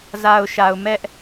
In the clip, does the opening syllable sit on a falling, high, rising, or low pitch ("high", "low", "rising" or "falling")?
low